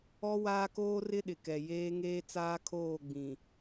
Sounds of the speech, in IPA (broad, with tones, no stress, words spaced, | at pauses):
ɔ˦ waː˦koː˦rɪ˦ ɗɪ˨kɛ˨ jeː˦ŋeː˦t͡saː˦kʰoː˦˨ ɡ͡bĩ˨